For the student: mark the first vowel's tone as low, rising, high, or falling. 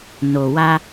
low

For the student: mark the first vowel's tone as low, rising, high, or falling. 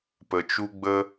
low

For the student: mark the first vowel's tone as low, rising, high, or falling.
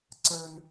high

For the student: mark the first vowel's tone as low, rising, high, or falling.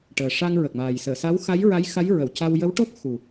low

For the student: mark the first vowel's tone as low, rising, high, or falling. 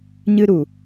high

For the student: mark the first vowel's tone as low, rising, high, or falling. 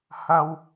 high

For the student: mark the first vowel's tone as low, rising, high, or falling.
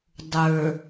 low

